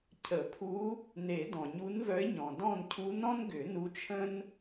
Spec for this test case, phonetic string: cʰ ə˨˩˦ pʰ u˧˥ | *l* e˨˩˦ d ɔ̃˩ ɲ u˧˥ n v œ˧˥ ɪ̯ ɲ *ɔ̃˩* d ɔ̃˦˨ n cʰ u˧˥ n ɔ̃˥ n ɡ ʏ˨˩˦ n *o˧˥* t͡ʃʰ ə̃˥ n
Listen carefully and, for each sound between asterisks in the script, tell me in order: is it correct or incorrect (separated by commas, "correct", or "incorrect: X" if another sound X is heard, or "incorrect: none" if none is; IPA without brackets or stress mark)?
incorrect: n, correct, incorrect: u˧˥